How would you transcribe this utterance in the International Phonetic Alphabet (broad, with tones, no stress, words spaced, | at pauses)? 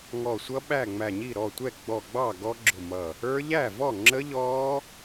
ŋɔ˧˩sʷʌ˦˥ ɓæ˥˩ŋ͡mæ˧˩ɲi˥˩ɾɔ˥˩ tʷɛ˥˩ ɡ͡bɔ˧˩ɡ͡bɑ˥˩ ɡɔ˦˥ɡ͡ǁʊ˧˩mʌ˧˩ | ə˞˦˥ ʎæ˥˩vɔ˥˩ŋ͡ǁə˦˥ ʎɔ˦˥